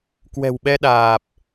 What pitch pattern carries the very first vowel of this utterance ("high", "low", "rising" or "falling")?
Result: low